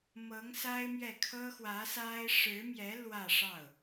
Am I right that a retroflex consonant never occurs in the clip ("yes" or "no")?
no